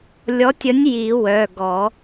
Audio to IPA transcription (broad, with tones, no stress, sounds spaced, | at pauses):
lʲ ɔ˨˥ tʲ ə˨˥ nʲ j i˨˩˦ w œ˩˧˩ ɡ ɔ˨˩˦